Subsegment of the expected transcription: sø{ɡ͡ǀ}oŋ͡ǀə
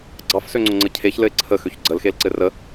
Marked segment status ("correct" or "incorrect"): incorrect